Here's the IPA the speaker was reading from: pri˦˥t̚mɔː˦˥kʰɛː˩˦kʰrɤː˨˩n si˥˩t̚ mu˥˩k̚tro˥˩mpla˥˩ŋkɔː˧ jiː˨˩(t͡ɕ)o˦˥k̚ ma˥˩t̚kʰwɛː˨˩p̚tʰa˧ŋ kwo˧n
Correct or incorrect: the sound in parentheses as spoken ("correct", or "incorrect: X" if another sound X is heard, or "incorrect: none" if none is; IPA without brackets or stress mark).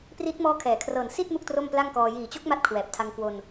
correct